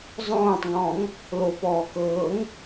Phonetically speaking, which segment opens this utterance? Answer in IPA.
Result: zˤ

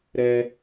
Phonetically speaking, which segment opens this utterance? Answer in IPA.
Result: ɾ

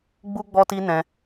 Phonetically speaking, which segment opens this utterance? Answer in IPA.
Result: ɡ͡b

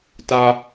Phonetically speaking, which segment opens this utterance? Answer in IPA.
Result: t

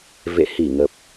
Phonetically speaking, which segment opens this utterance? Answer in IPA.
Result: v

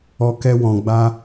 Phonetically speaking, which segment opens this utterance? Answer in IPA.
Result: ɔ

